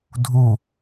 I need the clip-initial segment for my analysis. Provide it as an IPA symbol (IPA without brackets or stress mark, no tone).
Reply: dʱ